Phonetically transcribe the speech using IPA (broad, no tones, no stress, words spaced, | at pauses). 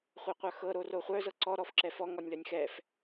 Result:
χʷœqʷœxɤ ɾoroχʷœ zɤǀɔ ɾɔfǁɛfɔ ŋɔnʲlœnʲxɛf